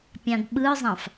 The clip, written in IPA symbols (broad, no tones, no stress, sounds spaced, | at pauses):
pʲ ɑ̃ d ɓ ɯ ʊ̯ zˤ ɑ̃ f